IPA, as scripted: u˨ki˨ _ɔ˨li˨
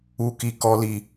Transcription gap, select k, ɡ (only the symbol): k